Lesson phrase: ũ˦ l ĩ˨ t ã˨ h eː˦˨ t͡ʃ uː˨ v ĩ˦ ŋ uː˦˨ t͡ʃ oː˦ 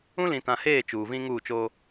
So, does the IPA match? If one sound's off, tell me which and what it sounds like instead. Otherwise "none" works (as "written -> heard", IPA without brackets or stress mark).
none